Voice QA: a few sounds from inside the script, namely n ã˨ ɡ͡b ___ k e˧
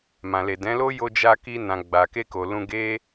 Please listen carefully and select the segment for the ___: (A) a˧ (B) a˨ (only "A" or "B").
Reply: B